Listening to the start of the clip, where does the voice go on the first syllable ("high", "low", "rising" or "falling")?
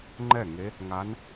falling